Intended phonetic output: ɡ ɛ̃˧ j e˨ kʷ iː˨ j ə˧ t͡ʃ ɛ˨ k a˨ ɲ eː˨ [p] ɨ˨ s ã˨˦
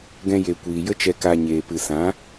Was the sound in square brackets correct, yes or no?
yes